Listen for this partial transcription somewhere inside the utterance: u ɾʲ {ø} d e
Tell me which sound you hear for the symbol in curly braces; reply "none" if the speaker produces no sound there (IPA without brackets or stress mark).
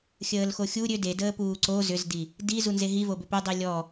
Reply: ø